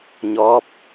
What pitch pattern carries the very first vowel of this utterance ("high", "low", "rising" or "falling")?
rising